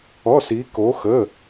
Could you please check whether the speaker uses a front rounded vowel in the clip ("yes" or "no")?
no